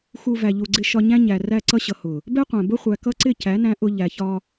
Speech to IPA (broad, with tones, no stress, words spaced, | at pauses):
xu˧ væ˨ʎu˨ɡ͡ǀɪ˧ ʃɒ˧ɲæ̃˦ɲæ˨ ræ˧ ǀʌ˧ɕʌ˨ hʊ˨ | bɛ˦qʷæ̃˨ bʊ˧χʷæ˨kʌ˧ ǀɪ˦˨ cæ˨˦næ̃˧ ʔʊ˧ ʎæ˨çɒ˧